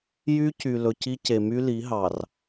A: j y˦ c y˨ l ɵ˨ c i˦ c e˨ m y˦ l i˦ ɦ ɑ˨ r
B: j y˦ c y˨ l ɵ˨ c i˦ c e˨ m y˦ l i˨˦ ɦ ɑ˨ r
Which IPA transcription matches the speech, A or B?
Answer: B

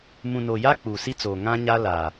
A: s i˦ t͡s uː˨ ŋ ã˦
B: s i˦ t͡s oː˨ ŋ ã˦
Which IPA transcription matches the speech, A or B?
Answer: B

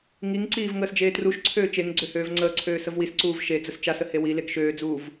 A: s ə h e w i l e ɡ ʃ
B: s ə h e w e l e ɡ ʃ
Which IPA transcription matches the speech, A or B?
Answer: A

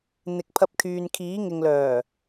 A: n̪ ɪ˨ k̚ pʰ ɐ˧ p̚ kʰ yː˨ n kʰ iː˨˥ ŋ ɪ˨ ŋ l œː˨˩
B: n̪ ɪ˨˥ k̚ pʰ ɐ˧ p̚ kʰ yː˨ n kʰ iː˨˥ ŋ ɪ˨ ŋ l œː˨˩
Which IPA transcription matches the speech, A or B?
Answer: A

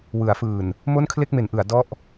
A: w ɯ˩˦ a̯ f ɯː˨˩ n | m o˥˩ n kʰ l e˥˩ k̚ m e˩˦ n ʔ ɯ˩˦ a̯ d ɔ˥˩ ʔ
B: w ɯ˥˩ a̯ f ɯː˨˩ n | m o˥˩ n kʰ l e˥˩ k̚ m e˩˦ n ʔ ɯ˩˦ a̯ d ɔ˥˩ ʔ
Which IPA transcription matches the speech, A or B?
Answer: A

